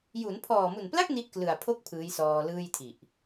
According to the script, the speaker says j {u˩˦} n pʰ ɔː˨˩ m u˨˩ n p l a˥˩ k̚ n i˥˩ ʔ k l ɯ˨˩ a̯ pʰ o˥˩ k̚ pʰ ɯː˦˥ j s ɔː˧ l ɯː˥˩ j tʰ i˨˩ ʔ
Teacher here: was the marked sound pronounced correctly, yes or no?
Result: yes